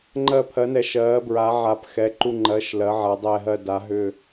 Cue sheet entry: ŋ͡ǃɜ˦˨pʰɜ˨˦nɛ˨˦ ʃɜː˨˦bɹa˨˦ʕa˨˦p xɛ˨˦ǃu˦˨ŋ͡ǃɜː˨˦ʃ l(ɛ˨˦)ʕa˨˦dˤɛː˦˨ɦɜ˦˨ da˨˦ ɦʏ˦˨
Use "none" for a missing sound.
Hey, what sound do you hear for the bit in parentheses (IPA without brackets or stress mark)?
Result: ɜ˨˦